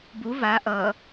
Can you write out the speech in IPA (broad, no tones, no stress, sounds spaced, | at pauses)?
b u v a ʔ ʌ